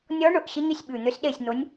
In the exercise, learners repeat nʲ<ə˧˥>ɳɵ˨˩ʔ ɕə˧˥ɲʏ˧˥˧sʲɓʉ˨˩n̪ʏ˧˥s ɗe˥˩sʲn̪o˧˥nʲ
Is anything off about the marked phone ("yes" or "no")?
yes